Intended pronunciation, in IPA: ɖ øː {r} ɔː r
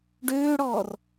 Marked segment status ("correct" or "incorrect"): incorrect